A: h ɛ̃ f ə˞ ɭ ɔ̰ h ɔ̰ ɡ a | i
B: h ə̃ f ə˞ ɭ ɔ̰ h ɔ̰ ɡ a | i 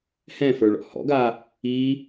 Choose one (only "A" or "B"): A